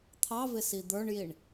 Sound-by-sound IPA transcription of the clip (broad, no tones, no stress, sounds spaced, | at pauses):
t̪ʰ ɑ v ɪ s i d̪ ə˞ ɳ j i ɳ